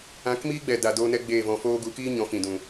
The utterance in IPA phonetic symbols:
ã˨˦kmiː˦ɡ͡bɛ˨ da˨doː˧nɛ˧ ɡ͡beː˦˨vɔ̃˧foː˦ ɡu˨˦kiː˦ ɲɔ̃˨˦fĩ˨dũ˨

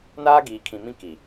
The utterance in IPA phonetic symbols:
naː˦ɡiː˨kʰĩ˨mĩ˦ ki˨

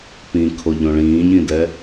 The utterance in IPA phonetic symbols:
pĩkʰoʎõ ɭĩːɲĩdɛ

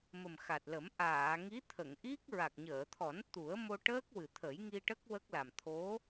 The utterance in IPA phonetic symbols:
mə˨˩mxa˨˩t̚lə˨˩˦m ʔaː˨˩˨ŋi˧˥ t̪ʰə˨˩˨ŋʔi˦˥k̚ ɹa˨˩k̚ɲəː˨˩˨t̪ʰɔ˨˩˦n t̪u˨˩˦ə̯mo˧ʈəː˦˥k̚wɨ˨˩ t̪ʰə˨˩˦jŋi˧ʈə˦˥k̚ wə˦˥k̚la˨˩m t̪ʰo˧˥

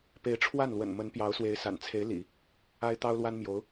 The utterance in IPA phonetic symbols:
pe˧˥ɪ̯ʈ͡ʂʰwa˥˩nlwə̰˨˩n mə˧˥npjɑ˧˥ʊ̯swe˧˥ɪ̯sa̰˨˩n t͡sʰe˧˥ɪ̯lḭ˨˩˦ | a˥ɪ̯ t̪ɑ˥ʊ̯lwa˥nmjo˧˥ʊ̯

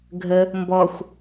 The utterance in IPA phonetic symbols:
ɡʱə | mbɔxʷ

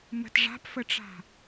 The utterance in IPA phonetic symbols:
mə̤t ʐa̤pfəʈ͡ʂa̤

